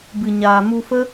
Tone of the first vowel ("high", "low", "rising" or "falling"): low